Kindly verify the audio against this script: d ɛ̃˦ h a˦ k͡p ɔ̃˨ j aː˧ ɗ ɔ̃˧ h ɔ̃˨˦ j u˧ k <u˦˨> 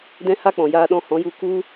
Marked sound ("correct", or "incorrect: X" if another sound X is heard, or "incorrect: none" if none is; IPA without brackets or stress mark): incorrect: u˧